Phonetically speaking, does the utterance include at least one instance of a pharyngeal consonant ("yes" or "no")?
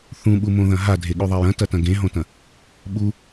no